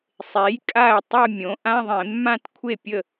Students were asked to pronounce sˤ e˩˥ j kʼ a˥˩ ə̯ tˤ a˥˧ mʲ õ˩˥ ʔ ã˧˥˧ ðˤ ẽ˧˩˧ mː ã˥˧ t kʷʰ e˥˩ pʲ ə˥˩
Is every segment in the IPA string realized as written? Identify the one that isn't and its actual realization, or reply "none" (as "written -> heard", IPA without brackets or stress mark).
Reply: none